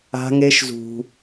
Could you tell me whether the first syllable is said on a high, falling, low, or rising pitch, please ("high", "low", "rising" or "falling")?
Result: high